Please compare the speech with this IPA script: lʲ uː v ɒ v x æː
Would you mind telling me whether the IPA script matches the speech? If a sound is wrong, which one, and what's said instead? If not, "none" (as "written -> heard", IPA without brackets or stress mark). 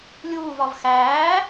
none